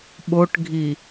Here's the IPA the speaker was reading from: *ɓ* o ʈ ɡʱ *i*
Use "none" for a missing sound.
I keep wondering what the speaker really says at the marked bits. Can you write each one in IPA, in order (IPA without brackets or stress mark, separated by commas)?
ɓ, i